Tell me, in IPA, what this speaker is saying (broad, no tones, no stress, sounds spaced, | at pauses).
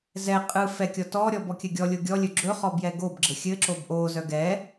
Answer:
z ɛ qʼ ɯ f ɛ kʲ ɔ t ɔ ɾʲ ɔ b ɔ kʲ ɘ ɡʲ ɔ lʲ o ɡʲ ɔ lʲ ɵ ɡ͡ǁ ɵ χ ɔ b j ɛ ɡ o b ɡ͡ǁ ɘ xʲ ɘ ǁ o b ʔ o z œ ɡ ɛ